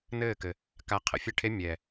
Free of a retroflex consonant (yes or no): no